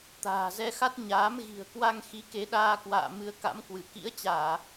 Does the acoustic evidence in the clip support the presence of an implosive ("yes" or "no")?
yes